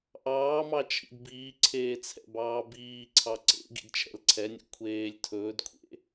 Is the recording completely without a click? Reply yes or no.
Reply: no